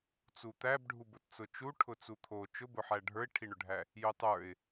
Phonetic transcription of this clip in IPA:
t͡s u t̪ æ b ɖʱ u b ʊ t t͡s ʊ t͡ʃ u ʈʰ ʊ t͡s u t̪ʰ o t͡ʃ ʊ b ʊ ħ æ ɖʱ ə˞ ɪ̯ ʈʰ i ɳ ʊ ɖʱ æ | j u tˤ ə˞ ɪ̯

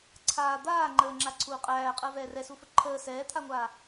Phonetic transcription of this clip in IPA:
ǀʰ aː d̪ aː ŋ͡ǃ əː ŋ͡ǁ a ǀʰ uː qʼ æː qʼ əː v ɛː r ɛ s u f ə ǃʰ əː s ɛː t̪ʰ a ŋʷ aː

